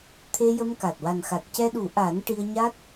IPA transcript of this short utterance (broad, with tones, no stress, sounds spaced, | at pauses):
t̪ʰ e˧ j ə˧ m k a˨˩ t̚ w a˨˩ n x a˨˩ t̚ c ɛ˧ ɗ u˨˩˦ ʔ a˨˩˦ n ʈ i˧ ə̯ ɲ a˦˥ t̚